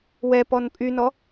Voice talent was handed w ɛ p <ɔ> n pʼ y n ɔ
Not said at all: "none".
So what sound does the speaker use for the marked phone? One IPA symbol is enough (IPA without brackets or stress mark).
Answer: ɔ